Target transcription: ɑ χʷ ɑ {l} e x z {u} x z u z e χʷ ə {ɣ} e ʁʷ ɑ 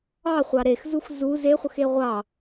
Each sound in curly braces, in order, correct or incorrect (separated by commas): incorrect, correct, incorrect